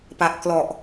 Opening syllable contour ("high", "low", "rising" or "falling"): low